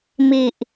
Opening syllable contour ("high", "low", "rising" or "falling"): low